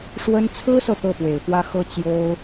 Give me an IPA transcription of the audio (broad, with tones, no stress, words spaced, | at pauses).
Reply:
ʂwə˥n t͡sʰɹ̩˥sɤ˨ t̪ɤ˥˩pwe˨˩ɪ̯fwä˥xɤ˥ t͡ɕjo˥ʊ̯